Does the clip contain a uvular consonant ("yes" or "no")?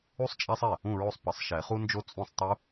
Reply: yes